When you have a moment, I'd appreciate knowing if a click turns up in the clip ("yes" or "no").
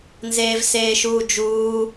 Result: no